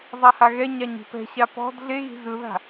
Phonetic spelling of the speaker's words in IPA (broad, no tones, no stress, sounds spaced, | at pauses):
zˤ a h a ɣ ɛ ɲ a ɲ i̤ p ɛ̤ ɕ a p ɔ̤ d ɮ e ɣ i̤ z ɯ ð a̤